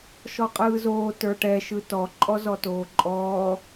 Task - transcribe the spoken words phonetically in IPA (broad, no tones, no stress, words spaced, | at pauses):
ʃɔqʼɯːzoː tə˞ʈɛ ʃɯtɔ ǃʼɔzɔtoːǃʼɔː